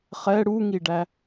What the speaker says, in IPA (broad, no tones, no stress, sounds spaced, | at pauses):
χ ɛ ɽ u ŋ i ɖ æ